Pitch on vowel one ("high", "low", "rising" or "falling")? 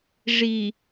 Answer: low